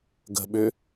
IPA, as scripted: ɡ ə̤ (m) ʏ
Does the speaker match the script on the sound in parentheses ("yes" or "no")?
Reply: no